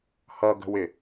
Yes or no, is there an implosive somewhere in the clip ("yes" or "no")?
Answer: no